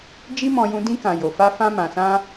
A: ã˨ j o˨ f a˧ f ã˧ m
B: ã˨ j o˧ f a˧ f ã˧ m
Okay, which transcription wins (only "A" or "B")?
A